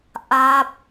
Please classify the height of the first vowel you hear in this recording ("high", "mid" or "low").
low